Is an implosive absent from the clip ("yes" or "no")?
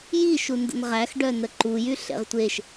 yes